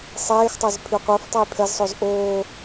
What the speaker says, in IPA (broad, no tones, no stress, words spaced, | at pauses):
sˤeːxtˤɜz pʰyqʷɜftˤaj pʰɜzsˤoz ʔoː